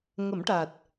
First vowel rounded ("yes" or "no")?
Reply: no